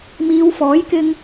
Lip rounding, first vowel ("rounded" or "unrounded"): unrounded